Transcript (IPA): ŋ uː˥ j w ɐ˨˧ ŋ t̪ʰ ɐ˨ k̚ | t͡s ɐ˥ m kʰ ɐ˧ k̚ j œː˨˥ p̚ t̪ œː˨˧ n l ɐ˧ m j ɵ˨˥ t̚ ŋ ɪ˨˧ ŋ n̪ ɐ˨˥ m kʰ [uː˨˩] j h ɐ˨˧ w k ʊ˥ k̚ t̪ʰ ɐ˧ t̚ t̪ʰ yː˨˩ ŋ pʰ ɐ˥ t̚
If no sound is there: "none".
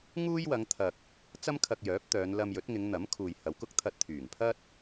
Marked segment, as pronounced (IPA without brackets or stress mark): uː˨